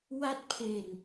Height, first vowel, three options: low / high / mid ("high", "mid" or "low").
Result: low